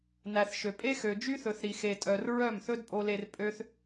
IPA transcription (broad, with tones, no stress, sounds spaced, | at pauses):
n æ˨ θ ʃ ø˨ pʼ e˦ x ø˨ d͡ʒ y˦ θ ɵ˨ θ ɾ i˨ x e˨ tʼ œ˨ r ɹ œ˦˨ m θ ɵ˦ d pʼ o˧ l e˧ r pʼ ø˦ θ